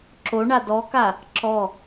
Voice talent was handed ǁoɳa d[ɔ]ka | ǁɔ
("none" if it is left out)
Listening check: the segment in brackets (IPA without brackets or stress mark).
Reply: ɔ